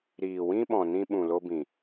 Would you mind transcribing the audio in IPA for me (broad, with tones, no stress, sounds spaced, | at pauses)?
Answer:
ɾ iː˨ w ĩ˦ ɓ ɔ̃˨ n ĩ˧ ɓ ũ˨ l o˧ b ĩ˨